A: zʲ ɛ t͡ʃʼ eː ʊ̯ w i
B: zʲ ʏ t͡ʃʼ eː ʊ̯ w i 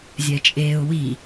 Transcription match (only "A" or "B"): A